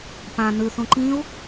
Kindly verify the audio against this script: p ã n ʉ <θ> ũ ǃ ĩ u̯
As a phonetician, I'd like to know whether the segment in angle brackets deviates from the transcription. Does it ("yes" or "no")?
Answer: no